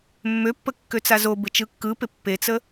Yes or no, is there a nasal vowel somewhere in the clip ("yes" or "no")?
no